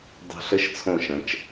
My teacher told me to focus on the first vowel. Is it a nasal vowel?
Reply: no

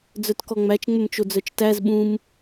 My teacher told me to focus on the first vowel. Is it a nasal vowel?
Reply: no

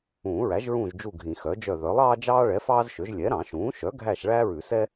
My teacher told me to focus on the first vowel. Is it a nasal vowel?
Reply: yes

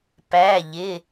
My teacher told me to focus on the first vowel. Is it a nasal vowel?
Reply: no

